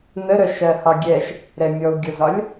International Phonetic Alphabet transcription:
nəɾœʃɜ hɒɡʲɛʃ | ɾɛmʲɔu̯ɡʲɤzɒlʲ

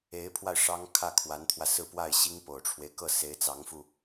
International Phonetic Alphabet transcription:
e˧˥ɪ̯pʰwa˧ɪ̯ ʂɑ˥ŋ kʰä˥˩kʰwa˧˥nt̪ʰwä˧ sɹ̩˥˧pwa˥˩ɪ̯ɕi˥ŋ po˨˩ʊ̯ʈ͡ʂʰwe˦ɪ̯kɤ˥˩ se˧˥ɪ̯t͡sɑ˧˥ŋfu˧

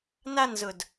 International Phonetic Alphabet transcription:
nanzʊd

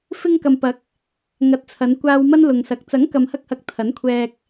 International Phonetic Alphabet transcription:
fɪ˧ŋkɐ˨mpɐ˨˥k̚ | ŋɐ˨˥t̚t͡sʰɐ˨˧n kʷaː˧w mɐ˥n lʊ˨ŋsɐ˨k̚ t͡sɐ˨˥ŋkɐ˨mhɐ˧k̚hɐ˨k̚ t̪ʰɐ˨˥nkʷʰɛː˧k̚

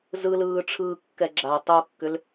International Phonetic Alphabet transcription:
zɯlɯːʈ͡ʂʰɯːkːɛ ɡ͡ǁa tˤokːʏl

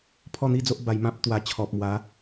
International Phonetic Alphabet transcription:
pʰɔ˥˧n̪i˥˧d͡zo˦ʔ ba˧jmã˦p̚ t̪wa˧t͡ɕʰɔ˨p̚mwa˨˦

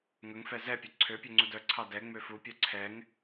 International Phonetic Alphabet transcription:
ŋɵŋfɛ zɛpʲɵ ǀʰøpʲøŋ͡ǀud œǀʰɑ dɛŋ͡mø fupʲœ ǀʰɛŋ

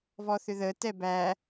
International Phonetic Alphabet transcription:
vɔθʏðətɛ bæ

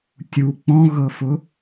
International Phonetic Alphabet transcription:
tʲu k͡pɔ̃ɣɤfʊ

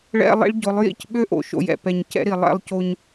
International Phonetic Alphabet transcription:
ɭɛ̰˦ lˠḭ˦ɭɟʊ˨˦lˠ jḭ˦c ɓø˦ʔo̰˨ʃo̰˨jɛ̰˨ pɛ˨ɲ cɛ̰˦ɾi˨ lˠɛ̰˦˨lˠco˦ɲ

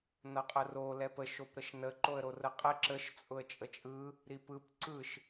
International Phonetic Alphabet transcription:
nʌqʼəro lɛpə ʃopɾəʃnə ǃoə̯ɾorəqʼɛ ǁəʃ t͡sʼʊə̯t͡ʃʼət͡ʃʼɯ | ɾipɯp ǀɯʃ

